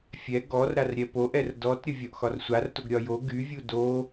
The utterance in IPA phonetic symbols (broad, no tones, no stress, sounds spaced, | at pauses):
fʲ ɛ ɡ ɔ r ɾ a r ɾʲ ɛ p o ʔ ɛ r d ɔ t ɾʲ ə vʲ ɒ ʔ x ɒ r sʷ a r t o ɡ ɾʲ ɒ j o ɡ y vʲ u d o